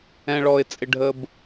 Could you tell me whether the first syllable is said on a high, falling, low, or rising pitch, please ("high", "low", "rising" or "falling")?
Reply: low